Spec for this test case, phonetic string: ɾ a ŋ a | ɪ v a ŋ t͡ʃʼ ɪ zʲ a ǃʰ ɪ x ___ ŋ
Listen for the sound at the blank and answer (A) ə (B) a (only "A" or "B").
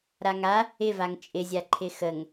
A